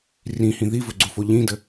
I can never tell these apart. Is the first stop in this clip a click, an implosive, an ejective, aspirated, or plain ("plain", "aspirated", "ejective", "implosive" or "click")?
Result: click